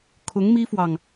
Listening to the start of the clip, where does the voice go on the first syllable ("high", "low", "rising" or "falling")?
rising